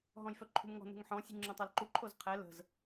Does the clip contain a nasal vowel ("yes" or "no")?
yes